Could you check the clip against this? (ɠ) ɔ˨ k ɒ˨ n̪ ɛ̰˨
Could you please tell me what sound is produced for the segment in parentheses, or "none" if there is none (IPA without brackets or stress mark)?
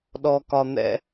ɗ